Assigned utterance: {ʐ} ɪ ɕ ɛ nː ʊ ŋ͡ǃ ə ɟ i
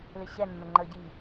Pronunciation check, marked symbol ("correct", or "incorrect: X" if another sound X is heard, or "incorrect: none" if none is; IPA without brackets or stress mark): incorrect: l